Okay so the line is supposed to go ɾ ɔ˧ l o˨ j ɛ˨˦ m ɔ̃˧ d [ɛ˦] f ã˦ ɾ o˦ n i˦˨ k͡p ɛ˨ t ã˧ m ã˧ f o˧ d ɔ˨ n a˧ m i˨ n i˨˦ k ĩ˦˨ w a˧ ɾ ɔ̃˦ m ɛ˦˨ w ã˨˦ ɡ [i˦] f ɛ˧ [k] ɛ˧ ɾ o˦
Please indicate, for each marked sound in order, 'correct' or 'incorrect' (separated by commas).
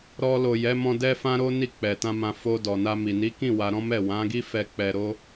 correct, correct, incorrect